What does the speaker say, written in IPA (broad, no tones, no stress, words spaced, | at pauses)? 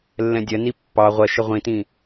lːɛ̃dʲɜni pːɑ ʁʷɜʃɪ ʁʷĩtĩ